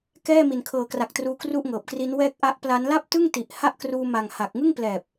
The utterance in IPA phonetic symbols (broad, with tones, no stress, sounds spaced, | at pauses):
k ɛː˥˩ m i˨˩ n kʰ ɤː˨˩ k r a˨˩ k̚ t r uː˦˥ k r u˥˩ ʔ ŋ ɤː˨˩ p̚ k r i˦˥ n w ɛː˦˥ k̚ ʔ a˦˥ ʔ p l a˦˥ n l a˥˩ p̚ t ɯ˥˩ ŋ t i˨˩ ʔ h a˥˩ ʔ k r uː˧ m a˨˩ ŋ h a˨˩ k̚ ŋ ɯ˥˩ ŋ p l ɛː˨˩ p̚